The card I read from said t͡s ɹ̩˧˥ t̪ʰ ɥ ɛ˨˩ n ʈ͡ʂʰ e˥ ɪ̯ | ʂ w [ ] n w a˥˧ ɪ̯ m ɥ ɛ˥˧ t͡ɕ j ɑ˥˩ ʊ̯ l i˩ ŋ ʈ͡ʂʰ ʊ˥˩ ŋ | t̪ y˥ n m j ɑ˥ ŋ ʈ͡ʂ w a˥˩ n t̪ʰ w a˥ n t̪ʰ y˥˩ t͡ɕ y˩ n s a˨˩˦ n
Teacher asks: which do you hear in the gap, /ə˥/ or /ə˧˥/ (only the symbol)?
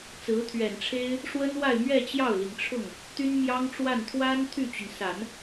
ə˥